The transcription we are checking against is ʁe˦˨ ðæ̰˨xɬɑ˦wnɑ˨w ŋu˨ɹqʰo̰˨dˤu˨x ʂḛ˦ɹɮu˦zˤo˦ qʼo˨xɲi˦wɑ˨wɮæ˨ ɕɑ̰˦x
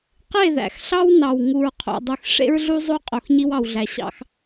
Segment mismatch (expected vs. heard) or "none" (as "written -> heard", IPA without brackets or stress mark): ʁ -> q